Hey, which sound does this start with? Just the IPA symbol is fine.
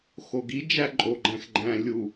x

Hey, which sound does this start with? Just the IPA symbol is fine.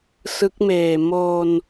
s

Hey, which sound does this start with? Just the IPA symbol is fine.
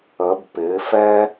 ə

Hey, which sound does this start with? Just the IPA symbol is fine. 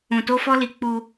ũ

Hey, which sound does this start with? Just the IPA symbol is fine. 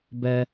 b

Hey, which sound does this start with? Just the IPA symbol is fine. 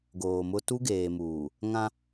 ɡ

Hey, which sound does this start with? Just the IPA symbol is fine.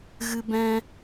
ɣ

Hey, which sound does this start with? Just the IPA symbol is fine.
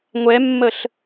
ŋʷ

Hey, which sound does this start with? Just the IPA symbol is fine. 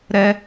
ɾ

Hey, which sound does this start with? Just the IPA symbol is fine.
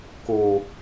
k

